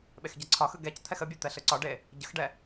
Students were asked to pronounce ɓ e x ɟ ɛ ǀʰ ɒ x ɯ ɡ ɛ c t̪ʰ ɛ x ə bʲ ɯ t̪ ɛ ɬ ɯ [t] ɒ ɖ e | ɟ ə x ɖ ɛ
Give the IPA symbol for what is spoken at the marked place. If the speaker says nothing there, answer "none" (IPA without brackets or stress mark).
ǀ